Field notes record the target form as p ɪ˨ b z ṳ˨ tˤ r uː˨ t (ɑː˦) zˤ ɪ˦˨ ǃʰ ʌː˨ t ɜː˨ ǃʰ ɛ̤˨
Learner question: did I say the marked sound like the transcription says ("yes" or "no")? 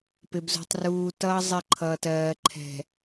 no